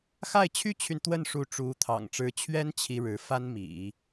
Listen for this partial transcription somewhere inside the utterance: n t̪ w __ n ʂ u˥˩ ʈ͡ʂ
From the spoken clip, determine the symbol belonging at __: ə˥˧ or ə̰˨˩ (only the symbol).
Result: ə˥˧